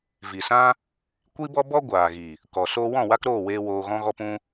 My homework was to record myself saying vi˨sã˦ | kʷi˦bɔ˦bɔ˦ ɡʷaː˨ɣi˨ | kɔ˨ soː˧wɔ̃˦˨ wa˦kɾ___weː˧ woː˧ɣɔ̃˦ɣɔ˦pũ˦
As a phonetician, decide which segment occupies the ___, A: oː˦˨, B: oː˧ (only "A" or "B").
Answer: A